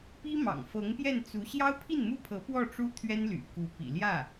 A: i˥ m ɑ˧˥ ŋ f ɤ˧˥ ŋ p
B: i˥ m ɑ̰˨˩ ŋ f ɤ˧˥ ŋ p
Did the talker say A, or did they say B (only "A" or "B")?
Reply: B